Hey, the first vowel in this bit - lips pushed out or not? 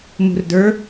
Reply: yes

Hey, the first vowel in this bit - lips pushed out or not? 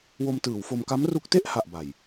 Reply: yes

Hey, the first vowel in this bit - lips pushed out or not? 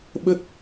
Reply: no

